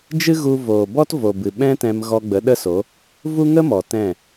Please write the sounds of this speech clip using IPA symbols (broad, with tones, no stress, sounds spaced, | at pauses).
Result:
d͡ʒ ɨ˦ ɣ u˧ v oː˨ b ɔ˦ t v o˨ b ɨ˨ ɓ ɛ̃˦ t ɛ̃˧ m ɣ ɔ˧ ɡ͡b ə˨˦ ɗ ə˦ s o˨˦ | v u˦ ŋ ə˦ m ɔ˨ t ɛ̃˦˨